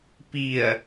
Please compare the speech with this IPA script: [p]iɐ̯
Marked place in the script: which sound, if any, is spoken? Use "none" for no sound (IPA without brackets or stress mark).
p